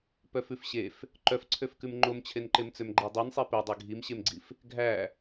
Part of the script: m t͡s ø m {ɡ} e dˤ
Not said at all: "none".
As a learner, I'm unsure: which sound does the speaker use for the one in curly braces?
ɡ͡ǃ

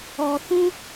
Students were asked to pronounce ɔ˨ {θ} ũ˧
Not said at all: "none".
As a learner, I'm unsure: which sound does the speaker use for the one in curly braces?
θ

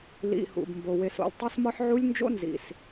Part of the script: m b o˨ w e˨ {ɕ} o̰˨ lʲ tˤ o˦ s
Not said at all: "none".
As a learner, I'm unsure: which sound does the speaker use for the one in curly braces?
s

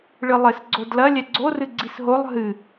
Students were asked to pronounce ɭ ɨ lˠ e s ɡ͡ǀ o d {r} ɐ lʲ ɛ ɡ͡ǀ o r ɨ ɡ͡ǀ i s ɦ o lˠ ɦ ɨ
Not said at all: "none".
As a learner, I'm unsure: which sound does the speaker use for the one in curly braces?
l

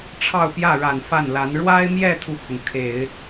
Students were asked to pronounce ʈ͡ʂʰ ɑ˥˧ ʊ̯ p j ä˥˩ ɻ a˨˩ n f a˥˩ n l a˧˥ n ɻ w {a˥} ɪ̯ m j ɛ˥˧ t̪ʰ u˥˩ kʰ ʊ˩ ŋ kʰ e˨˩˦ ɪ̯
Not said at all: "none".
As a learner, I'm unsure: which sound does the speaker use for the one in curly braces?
a˥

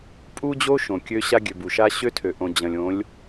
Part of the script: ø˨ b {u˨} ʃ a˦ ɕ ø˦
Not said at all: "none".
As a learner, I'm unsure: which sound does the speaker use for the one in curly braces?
u˨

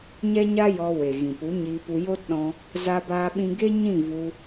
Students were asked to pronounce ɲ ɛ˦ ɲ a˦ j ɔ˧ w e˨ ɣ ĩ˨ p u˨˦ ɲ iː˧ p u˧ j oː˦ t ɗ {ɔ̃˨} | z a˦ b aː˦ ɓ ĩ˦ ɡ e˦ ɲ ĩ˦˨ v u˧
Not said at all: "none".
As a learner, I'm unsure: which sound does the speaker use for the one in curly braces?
ɔ̃˧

